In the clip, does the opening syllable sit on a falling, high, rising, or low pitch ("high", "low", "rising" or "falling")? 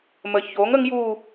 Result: low